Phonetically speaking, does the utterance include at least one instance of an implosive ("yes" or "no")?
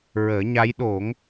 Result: yes